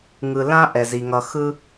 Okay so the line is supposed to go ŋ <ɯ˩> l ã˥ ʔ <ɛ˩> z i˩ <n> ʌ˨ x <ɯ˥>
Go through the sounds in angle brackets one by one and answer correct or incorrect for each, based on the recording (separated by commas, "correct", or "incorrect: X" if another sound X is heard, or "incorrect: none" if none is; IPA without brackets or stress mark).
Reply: correct, correct, incorrect: ŋ, correct